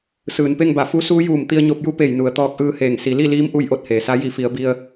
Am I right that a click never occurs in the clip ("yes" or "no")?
yes